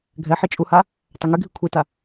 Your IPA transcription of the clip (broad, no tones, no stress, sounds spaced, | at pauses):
ɡʱ ɛ ħ i t͡ʃʼ u h a | tˤ ɛ ŋ y ɡʱ i kʷʰ i t a